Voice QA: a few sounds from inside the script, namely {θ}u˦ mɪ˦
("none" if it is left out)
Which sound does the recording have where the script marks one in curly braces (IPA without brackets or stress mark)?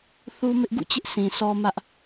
θ